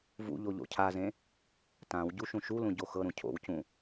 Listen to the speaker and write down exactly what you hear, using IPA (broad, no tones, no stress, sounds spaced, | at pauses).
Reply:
v ṵ ʎ o ʎ o̰ cʰ a z ẽ | t ã w ɟ u ʃ ũ ʃ u l ũ ɟ o x ɤ ɾ ũ cʰ o̰ w c ũ